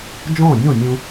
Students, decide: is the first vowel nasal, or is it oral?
nasal